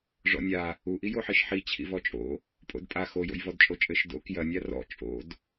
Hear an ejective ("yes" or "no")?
yes